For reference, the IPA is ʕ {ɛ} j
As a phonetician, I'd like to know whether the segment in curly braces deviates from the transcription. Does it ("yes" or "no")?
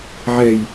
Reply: no